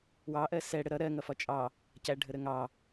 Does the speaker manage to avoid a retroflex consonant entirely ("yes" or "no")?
no